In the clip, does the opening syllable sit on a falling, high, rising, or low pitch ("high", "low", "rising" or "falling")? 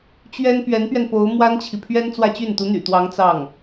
high